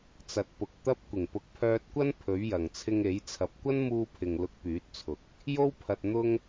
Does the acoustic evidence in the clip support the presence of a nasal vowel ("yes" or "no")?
no